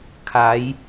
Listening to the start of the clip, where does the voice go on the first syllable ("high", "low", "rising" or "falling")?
rising